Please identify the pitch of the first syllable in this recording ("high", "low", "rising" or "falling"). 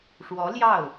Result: rising